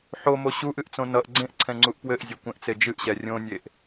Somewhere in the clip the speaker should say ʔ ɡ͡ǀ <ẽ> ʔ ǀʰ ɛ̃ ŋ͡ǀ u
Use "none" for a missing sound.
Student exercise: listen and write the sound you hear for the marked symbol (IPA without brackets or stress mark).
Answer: ẽ